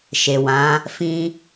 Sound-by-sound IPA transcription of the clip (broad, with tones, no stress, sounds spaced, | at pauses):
ʃ e˨ w ã˨˦ | f ĩ˦